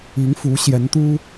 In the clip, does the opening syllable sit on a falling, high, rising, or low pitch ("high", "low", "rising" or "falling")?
rising